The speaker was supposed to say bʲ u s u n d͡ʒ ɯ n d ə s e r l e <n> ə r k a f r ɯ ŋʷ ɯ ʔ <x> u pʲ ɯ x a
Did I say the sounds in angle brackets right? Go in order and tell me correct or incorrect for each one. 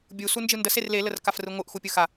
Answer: incorrect: l, correct

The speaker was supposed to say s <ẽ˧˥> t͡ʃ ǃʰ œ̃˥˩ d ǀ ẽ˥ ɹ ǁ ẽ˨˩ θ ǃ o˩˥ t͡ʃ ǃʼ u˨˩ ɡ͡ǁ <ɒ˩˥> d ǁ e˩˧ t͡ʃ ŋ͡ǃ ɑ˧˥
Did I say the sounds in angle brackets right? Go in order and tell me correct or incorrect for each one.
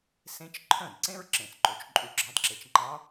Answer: correct, incorrect: ɑ˩˥

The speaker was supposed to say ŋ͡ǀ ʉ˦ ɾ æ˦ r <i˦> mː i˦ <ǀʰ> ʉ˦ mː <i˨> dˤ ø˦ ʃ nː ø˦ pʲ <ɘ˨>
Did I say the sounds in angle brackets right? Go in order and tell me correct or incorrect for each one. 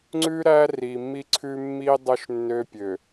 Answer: incorrect: i˨, correct, incorrect: i˦, incorrect: ø˨

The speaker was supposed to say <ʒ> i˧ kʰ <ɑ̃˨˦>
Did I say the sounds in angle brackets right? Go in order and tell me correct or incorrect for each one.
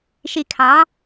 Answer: incorrect: ʃ, correct

